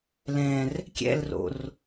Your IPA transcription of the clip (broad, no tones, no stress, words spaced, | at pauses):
lɛ̃r | kʲɛ̰lro̰r